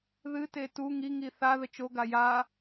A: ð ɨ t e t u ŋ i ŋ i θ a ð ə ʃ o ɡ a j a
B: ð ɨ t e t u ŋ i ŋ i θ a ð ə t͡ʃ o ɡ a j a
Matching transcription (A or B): B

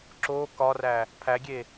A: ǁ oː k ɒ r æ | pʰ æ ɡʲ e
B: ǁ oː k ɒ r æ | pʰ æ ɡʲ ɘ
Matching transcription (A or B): A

